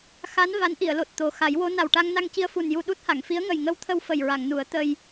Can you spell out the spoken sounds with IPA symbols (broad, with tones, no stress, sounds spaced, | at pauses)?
x a˧˥ n v a˧˥ n ʔ i˨˩˨ ə̯ l o˨˩ t̚ t̪ o˨˩ x a˨˩˦ j w o˧˥ n a˨˩ w ʈ a˧ ŋ n a˧ ŋ c i˧ ə̯ f u˨˩ n j u˧ ɗ u˦˥ t̚ h a˨˩˨ ŋ f i˧˥ ə̯ ŋ ə˨˩ j ŋ ə˧ w t̪ʰ ə˧ w f ə˨˩ j ɹ a˨˩˨ ŋ n u˨˩˦ ə̯ t̪ ə˧ j